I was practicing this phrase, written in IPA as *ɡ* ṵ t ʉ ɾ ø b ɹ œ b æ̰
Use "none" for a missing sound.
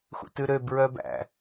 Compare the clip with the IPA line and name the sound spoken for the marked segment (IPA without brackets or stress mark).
x